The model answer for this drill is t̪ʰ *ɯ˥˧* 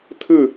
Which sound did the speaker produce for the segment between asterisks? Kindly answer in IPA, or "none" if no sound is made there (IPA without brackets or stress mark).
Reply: ɯ˥˧